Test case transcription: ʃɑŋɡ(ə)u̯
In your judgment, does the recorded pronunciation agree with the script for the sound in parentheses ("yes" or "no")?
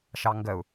yes